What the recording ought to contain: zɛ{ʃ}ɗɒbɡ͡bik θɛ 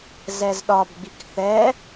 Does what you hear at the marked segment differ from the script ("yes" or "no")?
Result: yes